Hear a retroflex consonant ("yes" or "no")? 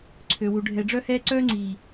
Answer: yes